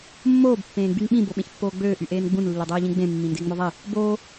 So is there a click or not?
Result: no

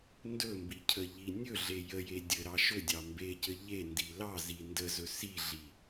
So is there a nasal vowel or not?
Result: no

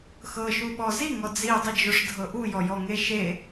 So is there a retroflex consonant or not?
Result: yes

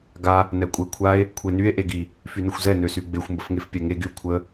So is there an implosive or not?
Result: no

